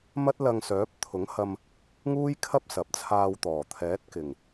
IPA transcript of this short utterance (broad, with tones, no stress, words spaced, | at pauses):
mɐ˥t̚lɐ˧ŋsœː˨˥p̚ t̪ʰʊ˨˥ŋhɐ˧m | ŋuː˥jkʰɐ˥p̚ sɐ˨˥p̚t͡sʰaː˧wt̪ɔː˨˩ t̪ʰɛː˨˥t̚kɪ˨˩ŋ